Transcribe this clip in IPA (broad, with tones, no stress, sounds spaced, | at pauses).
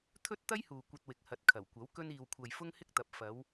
t̪ʰ ɵ˥ t̚ t̪ ɐ˥ j h uː˨ kʷ ɐ˧ t̚ w ɪ˨˥ k̚ h ɐ˨˥ t̚ kʰ ɐ˨˩ w kʷ ɐ˨˥ w k ɵ˧ n iː˨ w kʷʰ ɐ˨ j f ʊ˥ ŋ h ɪ˥ k̚ t̪ ɐ˨˥ p̚ f ɐ˨˧ w